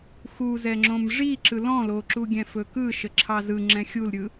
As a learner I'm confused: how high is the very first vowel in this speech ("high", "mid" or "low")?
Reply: high